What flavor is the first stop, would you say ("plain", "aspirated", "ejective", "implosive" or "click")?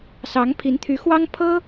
aspirated